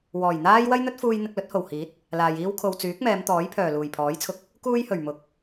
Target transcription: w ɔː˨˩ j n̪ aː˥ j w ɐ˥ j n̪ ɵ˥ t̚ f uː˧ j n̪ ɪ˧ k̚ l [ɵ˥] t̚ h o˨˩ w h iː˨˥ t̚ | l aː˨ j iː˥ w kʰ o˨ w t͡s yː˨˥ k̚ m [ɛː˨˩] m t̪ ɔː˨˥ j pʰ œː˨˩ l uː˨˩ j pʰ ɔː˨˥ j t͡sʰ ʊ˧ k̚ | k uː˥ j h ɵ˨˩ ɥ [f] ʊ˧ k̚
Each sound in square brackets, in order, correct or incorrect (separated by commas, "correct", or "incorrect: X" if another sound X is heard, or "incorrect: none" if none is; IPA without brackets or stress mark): incorrect: ɵ˨˥, incorrect: ɛː˨˧, incorrect: m